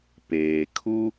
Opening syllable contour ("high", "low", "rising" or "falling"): low